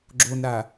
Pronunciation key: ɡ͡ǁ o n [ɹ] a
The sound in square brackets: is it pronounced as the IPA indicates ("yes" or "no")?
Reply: no